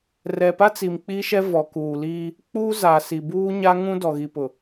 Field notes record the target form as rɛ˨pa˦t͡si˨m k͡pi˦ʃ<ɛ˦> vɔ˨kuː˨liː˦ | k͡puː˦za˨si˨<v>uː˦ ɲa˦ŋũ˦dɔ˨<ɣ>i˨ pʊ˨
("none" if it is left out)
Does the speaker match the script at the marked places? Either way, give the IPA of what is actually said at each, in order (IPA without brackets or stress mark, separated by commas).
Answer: ɛ˦, b, ɣ